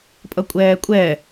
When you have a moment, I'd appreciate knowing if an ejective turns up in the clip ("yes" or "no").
yes